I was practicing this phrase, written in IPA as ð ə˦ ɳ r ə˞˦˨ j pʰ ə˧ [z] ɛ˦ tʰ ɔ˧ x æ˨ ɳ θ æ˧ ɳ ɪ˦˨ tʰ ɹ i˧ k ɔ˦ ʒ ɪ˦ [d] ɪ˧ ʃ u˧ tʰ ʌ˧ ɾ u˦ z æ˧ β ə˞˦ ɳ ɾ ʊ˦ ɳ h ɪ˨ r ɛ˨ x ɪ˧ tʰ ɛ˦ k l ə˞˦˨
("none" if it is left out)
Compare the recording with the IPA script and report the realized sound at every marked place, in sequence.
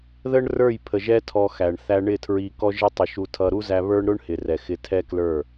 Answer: ʒ, tˤ

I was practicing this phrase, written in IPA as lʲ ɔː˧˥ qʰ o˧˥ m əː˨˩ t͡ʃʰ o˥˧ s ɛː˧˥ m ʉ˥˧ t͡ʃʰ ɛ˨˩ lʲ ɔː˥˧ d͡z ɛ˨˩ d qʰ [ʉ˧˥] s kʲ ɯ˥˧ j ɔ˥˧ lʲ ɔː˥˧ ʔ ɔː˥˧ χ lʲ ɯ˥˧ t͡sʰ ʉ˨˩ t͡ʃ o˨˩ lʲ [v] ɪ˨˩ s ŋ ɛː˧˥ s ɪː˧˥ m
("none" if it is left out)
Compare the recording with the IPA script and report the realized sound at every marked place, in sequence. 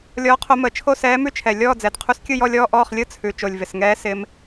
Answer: u˧˥, v

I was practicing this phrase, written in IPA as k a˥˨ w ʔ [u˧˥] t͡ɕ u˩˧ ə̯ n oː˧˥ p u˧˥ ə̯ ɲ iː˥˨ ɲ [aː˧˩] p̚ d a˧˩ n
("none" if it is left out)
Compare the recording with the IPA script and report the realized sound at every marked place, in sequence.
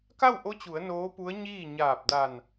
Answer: o˧˥, aː˧˩

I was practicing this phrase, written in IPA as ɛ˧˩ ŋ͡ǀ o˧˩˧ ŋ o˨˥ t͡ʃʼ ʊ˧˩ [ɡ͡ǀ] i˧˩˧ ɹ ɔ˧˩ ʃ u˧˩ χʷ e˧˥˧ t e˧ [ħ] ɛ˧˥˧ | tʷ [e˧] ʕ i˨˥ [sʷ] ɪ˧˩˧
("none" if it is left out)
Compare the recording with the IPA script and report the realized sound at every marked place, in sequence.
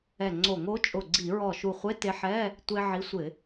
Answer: ɡ͡ǀ, ħ, e˧, sʷ

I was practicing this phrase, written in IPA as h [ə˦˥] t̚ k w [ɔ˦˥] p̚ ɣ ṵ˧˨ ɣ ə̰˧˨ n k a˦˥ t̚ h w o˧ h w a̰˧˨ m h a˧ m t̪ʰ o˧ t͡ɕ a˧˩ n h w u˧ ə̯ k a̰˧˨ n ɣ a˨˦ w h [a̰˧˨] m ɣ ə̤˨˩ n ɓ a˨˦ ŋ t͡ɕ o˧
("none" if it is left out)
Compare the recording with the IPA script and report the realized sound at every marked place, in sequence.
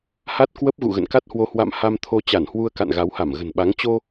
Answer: a˦˥, ə˦˥, a˧˩

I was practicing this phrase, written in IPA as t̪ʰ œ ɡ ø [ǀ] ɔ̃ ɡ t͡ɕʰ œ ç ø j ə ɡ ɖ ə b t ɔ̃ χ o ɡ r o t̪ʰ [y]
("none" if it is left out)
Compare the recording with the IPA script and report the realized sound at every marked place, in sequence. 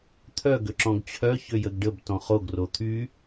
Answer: ǁ, y

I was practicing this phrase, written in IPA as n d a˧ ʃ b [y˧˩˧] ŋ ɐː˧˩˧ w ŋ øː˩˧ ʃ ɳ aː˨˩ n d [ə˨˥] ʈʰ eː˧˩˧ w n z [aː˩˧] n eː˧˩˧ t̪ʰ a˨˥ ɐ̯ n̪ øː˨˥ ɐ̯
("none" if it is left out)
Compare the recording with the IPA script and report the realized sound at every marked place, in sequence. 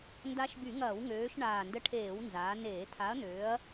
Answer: y˧˩˧, ə˧, aː˩˧

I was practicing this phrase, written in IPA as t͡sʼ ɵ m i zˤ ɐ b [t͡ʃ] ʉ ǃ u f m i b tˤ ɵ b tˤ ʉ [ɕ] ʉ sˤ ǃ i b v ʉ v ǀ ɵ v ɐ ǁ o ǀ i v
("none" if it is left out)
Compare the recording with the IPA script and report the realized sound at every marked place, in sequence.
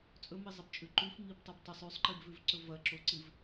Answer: t͡ʃʼ, sˤ

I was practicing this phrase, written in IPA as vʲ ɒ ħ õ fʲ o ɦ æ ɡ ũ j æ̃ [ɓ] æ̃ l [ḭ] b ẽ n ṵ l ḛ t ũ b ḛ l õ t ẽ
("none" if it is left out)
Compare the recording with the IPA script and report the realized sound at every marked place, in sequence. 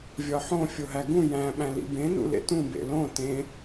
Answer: ɓ, ḭ

